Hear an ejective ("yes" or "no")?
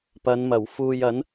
no